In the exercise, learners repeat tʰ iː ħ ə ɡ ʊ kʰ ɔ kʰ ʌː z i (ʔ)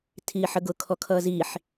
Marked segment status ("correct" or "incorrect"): incorrect